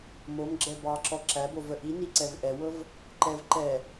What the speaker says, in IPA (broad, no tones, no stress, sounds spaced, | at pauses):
m o m ɡ͡ǁ ɛ b ɑ ǁ ɔ ǁ æ b o v ə ʔ i n i ǀ ɛ v ʔ ɛ w ɤ v | ǃ ɛ v ǃ ɛ